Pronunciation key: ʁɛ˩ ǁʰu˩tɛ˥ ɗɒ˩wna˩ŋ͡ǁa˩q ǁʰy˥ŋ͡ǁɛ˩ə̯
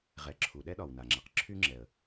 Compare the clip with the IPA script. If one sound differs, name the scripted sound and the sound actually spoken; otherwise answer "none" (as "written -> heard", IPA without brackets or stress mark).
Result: t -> ɗ